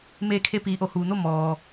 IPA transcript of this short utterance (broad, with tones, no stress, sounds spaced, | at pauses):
m eː˧ kʰ e˧ p iː˩˧ ʔ o˩ h uː˩ n o˥˨ m ɔː˩